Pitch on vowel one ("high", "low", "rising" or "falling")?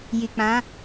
low